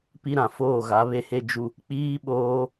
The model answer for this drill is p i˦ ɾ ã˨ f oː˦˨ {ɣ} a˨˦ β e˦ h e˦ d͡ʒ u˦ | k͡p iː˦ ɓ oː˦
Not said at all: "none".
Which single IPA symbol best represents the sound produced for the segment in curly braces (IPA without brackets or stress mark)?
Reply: ɣ